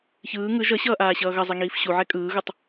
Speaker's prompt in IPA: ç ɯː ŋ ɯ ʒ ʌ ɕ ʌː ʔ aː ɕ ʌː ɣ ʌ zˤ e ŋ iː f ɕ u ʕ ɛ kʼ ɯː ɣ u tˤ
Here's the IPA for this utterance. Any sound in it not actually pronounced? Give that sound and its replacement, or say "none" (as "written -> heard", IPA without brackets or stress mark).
none